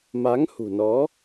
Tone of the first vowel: rising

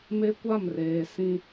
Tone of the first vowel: high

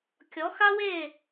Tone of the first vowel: rising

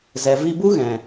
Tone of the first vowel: low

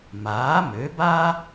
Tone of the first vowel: rising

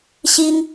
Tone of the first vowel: high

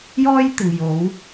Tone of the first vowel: high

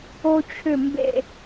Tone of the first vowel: high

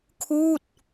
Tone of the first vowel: falling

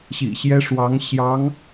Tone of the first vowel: low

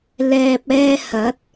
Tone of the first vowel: low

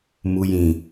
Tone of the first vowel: low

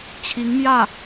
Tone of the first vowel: rising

